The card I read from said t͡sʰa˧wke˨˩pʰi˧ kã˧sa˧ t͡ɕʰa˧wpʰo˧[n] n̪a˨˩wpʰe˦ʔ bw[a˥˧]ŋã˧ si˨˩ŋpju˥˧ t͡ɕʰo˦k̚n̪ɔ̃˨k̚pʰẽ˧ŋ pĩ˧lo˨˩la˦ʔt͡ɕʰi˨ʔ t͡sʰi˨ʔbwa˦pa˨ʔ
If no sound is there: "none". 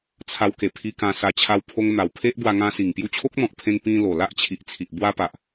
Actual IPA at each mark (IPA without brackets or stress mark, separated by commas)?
ŋ, a˧